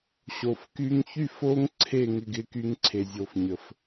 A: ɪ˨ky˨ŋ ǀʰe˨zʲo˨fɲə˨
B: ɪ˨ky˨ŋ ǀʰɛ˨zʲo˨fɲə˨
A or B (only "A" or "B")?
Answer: A